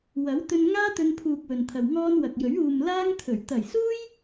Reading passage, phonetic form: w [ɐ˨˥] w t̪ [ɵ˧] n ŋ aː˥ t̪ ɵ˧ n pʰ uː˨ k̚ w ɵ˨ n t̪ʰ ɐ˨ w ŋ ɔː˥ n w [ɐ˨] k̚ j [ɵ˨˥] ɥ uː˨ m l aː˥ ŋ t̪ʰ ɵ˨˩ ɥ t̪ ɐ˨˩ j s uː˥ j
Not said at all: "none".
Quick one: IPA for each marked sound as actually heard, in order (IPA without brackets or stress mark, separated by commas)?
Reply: ɐ˨˥, ɵ˧, ɐ˨, ɵ˨˥